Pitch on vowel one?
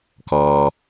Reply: low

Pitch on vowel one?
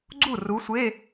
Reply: falling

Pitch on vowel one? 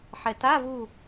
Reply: low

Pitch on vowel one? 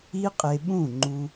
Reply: high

